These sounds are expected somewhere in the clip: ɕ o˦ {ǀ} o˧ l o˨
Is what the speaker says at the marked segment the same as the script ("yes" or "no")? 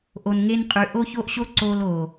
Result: yes